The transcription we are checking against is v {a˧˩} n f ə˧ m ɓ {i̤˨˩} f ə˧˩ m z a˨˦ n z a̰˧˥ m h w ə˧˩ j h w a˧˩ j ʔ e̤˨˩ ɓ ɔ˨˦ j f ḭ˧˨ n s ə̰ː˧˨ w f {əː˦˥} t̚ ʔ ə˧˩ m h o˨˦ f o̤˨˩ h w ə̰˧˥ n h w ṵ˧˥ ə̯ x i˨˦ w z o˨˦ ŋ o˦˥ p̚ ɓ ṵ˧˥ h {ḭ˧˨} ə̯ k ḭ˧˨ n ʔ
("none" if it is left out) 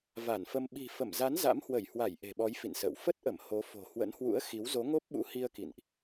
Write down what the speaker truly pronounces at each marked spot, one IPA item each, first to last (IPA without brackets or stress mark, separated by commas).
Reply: a˧˩, i̤˨˩, ə˦˥, i˧